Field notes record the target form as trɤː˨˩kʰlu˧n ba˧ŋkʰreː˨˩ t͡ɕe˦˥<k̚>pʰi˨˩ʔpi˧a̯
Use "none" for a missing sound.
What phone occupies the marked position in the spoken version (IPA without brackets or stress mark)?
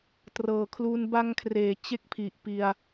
k̚